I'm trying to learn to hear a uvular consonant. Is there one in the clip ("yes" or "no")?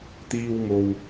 no